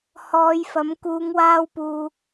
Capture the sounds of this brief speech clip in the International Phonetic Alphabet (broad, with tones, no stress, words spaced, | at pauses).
hɔː˨˧jfɐ˨˥m kuː˨˧ŋwaː˧wpuː˨